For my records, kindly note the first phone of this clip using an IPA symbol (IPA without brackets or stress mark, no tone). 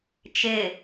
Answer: t͡ʃ